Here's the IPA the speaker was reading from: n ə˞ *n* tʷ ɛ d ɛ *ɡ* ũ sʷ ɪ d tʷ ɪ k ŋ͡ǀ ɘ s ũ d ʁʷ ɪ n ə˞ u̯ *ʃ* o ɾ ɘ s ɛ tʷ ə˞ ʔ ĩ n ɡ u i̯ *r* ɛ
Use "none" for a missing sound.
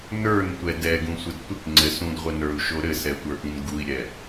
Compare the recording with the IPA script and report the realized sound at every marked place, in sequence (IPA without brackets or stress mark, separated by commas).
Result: n, ɡ, ʃ, ɾʲ